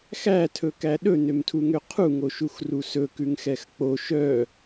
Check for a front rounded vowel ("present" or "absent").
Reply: present